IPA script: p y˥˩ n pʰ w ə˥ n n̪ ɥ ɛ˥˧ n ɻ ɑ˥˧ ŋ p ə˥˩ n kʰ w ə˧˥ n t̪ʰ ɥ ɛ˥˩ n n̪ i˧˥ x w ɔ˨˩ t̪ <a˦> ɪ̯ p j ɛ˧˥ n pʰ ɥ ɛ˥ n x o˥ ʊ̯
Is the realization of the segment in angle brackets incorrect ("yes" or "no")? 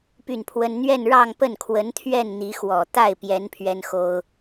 yes